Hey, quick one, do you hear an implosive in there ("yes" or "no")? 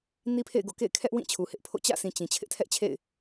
no